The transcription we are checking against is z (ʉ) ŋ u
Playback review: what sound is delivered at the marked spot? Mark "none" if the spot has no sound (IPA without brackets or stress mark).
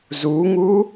u